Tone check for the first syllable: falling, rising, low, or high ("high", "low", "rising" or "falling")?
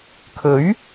rising